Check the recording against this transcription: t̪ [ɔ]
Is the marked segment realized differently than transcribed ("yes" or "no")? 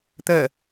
yes